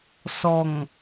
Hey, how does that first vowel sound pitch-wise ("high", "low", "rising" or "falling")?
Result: low